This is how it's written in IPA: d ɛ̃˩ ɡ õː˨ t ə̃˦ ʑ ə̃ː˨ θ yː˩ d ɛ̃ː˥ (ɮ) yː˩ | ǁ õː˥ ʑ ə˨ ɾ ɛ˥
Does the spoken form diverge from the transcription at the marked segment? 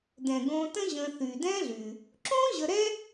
no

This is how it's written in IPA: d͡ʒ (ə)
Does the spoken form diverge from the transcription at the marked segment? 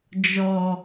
yes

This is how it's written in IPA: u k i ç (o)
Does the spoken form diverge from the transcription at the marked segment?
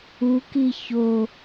no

